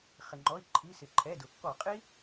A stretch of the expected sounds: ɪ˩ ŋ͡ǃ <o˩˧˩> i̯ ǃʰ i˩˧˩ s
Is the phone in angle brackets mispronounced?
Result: yes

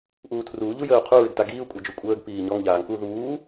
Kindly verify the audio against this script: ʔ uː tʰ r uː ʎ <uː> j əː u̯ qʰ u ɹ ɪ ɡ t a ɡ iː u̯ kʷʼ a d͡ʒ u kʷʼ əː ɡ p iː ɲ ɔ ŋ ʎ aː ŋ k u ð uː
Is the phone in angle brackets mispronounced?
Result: yes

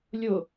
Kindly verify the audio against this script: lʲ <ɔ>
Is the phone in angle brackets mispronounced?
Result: yes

